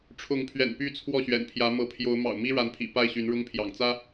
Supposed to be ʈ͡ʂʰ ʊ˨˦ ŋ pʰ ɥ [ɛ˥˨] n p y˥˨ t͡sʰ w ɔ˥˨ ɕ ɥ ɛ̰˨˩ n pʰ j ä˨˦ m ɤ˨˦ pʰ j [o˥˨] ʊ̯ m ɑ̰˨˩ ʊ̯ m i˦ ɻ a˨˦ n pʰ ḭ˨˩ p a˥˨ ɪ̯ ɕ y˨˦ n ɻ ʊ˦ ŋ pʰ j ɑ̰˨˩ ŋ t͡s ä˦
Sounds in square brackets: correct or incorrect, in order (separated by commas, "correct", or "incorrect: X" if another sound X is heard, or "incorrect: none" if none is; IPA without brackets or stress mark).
incorrect: ɛ̰˨˩, incorrect: o˨˦